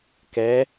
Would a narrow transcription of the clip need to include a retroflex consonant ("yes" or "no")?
no